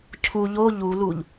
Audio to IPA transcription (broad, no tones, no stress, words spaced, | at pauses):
cʰu ʎo ʎuluʎ